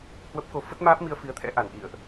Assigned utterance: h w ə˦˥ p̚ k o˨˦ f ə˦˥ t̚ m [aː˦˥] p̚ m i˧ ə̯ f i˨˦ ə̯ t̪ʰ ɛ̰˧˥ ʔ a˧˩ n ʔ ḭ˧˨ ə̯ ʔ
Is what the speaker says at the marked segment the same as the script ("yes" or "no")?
yes